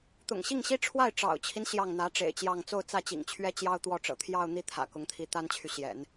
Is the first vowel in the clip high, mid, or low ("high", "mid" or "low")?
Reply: high